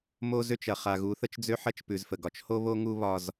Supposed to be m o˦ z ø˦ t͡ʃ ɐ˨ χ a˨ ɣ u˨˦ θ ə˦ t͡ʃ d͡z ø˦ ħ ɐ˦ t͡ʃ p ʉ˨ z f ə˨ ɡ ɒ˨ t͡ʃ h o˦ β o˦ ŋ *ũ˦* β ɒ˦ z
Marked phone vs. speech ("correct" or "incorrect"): incorrect